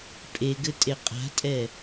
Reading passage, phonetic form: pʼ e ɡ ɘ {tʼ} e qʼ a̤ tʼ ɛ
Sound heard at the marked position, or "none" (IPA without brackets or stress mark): tʼ